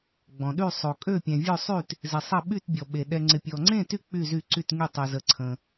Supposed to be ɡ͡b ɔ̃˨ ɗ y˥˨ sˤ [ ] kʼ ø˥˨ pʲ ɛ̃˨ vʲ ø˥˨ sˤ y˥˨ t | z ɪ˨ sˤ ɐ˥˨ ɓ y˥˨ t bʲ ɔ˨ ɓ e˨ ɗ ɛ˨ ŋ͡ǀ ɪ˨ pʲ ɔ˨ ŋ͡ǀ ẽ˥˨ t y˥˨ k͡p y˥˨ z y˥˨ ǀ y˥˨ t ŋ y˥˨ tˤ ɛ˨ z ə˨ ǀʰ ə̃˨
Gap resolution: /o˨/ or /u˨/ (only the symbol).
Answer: o˨